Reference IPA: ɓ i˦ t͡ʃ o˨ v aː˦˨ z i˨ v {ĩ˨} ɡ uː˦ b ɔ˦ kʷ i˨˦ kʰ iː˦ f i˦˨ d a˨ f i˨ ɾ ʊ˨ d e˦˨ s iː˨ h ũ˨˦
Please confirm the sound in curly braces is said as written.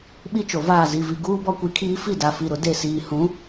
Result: no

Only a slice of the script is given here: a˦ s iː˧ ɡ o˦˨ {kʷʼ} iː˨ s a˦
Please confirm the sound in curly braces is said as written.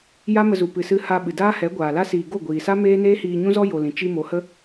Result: no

